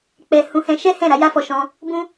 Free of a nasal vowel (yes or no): no